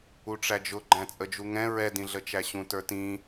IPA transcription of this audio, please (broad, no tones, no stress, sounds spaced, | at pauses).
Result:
u ʈ͡ʂ æ d͡ʒ ʊ ɡ͡ǃ æ̃ t͡sʼ ə d͡ʒ u ŋ ɛ̃ ɹ ɛ d ĩ ɮ ə t͡ʃ æ ɕ ũ t ə˞ t ĩ